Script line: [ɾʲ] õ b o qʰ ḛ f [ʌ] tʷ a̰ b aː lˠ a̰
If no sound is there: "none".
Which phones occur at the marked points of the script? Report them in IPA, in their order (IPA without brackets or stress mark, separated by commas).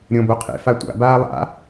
ɾʲ, a